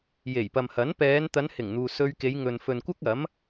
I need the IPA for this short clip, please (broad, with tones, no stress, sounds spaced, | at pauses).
j e˨˩ j p ɐ˨ m h ɐ˨˥ n p ɛː˨˧ n t̪ ɐ˨˧ n h ɪ˨˩ ŋ n̪ uː˨ s ɵ˧ ɥ k e˨˧ j ŋ ɵ˨ n f ɵ˨ n kʷ ɐ˥ k̚ ɐ˨˥ m